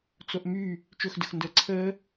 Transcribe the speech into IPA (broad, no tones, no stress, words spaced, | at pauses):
t͡soʔmy | t͡ʃɵxdəx ndəːǀʰəː